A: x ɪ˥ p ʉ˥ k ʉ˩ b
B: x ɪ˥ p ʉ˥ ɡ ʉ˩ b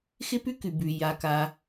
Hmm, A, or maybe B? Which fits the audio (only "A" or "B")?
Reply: A